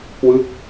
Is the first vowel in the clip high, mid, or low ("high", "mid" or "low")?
high